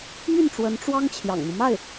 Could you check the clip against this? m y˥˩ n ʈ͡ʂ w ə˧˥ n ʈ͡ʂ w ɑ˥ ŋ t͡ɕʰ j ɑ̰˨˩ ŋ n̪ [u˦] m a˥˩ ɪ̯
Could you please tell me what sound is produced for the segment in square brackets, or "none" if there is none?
u˦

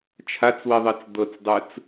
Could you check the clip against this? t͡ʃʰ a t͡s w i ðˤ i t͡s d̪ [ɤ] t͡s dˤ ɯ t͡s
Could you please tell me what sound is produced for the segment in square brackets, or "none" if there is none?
ɤ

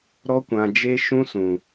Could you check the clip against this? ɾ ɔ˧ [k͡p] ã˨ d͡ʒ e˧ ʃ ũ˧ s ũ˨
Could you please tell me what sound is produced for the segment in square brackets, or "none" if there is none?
kʷ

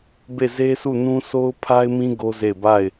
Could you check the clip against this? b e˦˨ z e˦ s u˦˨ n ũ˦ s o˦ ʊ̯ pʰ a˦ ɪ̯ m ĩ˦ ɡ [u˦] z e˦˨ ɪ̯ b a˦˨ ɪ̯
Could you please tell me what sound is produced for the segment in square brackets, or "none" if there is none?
o˦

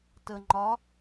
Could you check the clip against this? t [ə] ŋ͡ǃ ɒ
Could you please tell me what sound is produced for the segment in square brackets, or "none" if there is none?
ə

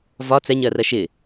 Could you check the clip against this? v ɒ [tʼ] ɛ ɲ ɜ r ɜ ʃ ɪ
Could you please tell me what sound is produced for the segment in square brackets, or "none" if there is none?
t͡s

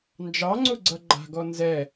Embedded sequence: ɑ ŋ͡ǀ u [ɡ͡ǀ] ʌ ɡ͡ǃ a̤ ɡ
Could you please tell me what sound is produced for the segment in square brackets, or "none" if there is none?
ɡ͡ǀ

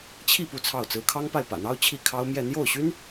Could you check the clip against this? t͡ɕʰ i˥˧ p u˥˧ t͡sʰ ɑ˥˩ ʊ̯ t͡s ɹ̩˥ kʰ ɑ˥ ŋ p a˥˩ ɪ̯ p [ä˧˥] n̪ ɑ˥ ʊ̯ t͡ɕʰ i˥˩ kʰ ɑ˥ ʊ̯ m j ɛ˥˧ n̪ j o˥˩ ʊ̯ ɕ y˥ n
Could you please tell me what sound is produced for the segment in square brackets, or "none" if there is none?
ä̰˨˩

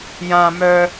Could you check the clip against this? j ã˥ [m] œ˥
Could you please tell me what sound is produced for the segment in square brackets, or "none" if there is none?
m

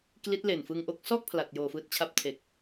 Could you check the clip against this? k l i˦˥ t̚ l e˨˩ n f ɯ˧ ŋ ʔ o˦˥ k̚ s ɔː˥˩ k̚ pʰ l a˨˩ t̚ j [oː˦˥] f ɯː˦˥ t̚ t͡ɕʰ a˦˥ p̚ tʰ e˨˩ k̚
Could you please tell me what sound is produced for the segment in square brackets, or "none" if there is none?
oː˨˩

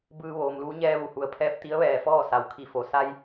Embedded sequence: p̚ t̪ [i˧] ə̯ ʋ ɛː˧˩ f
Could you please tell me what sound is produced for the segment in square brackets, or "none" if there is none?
i˧˥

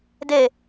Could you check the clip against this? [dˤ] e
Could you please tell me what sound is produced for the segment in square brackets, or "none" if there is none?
d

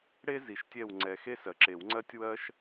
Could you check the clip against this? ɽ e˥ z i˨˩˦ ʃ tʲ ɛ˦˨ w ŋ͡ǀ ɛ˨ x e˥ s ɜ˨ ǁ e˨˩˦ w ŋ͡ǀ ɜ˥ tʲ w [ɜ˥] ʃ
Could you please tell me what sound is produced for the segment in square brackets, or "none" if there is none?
ɜ˥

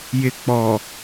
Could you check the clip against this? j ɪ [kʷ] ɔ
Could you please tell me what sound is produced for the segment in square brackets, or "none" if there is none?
k͡p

